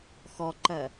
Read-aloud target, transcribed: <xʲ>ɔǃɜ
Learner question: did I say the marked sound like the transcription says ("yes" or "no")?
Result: no